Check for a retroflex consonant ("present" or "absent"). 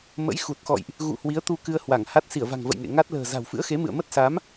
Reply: absent